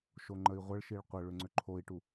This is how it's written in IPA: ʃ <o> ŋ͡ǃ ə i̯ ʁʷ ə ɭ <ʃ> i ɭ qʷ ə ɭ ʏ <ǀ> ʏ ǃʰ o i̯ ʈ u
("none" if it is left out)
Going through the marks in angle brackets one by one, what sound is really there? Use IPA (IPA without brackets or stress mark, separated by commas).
o, ʃ, ŋ͡ǀ